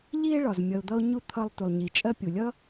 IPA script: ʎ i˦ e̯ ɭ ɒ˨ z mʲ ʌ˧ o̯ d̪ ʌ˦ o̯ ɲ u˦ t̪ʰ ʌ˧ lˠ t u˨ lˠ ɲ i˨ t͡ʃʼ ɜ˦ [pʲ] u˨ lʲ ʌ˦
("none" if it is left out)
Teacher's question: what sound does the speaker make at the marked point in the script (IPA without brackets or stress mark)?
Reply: pʲ